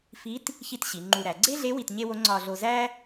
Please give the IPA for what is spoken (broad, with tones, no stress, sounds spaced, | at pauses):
f i˧˥ t | ç i˧ t ɕ i˩˧ ŋ͡ǃ u˧ ɾ æ˩˧ ɡ͡ǀ e˥ ɮ e˧˥ w i˧ t ɲ e˥ w o˧˥ ŋ͡ǀ ɒ˧ ɮ o˧ z æ˥